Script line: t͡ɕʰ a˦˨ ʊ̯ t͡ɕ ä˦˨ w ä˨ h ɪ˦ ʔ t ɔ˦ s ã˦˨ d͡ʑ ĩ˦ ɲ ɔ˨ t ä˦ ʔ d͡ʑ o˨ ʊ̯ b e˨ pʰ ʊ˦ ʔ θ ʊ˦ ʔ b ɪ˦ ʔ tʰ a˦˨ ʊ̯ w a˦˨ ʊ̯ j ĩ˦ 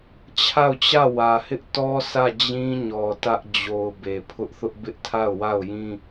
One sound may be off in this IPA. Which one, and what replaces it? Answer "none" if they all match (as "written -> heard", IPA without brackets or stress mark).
ã˦˨ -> ä˦˨